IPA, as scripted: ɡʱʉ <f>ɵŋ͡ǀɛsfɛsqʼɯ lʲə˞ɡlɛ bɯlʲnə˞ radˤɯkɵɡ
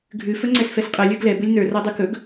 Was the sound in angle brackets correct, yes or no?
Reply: yes